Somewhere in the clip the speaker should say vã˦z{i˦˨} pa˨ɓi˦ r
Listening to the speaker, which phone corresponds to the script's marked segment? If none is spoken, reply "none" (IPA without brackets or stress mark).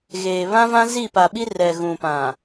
i˦˨